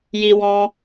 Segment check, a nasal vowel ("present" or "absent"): present